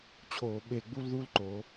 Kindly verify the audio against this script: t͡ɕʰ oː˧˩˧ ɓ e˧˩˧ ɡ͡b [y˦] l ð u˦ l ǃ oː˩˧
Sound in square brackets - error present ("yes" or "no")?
yes